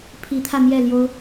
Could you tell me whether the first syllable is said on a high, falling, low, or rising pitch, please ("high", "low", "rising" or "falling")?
rising